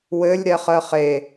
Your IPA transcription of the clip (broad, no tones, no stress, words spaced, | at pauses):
wɘlʲ ɾɛχɜχe